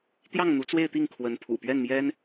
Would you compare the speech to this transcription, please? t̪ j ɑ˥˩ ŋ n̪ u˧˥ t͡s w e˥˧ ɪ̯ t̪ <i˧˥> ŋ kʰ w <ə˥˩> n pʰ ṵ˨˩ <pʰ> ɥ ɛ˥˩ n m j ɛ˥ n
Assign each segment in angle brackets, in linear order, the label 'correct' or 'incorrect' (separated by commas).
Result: incorrect, incorrect, incorrect